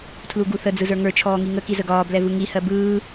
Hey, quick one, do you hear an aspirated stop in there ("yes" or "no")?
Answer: yes